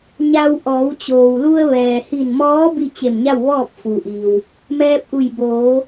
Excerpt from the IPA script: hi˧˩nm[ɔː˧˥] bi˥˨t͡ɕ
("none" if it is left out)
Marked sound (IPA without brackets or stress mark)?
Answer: ɔː˧˥